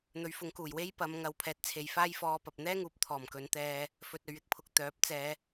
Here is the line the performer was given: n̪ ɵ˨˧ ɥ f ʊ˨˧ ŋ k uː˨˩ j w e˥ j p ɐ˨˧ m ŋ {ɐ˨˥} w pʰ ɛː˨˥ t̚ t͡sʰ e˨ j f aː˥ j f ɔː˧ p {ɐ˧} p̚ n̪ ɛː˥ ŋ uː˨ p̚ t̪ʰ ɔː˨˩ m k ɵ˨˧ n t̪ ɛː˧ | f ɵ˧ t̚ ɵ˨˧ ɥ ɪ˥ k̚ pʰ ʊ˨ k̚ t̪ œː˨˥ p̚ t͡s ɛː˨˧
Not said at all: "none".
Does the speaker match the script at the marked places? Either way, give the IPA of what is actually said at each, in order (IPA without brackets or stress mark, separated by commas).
ɐ˨˧, ɐ˨